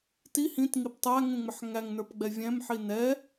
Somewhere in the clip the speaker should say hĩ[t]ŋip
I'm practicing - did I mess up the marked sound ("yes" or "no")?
no